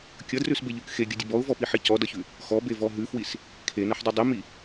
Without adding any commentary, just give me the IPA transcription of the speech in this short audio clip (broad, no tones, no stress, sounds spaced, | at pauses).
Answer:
kʲ ʌ d r ʉ s b e ʎ ʉ k x e ɡʲ ʌ dʲ ə b ɔ ʊ̯ v ɔ p i ħ i c ɔ d ʌ ç ʉ | x ɔ b e v ɔ ɦ ʉ f w i s | kʰ e n ʌ ħ dˤ i dˤ i m i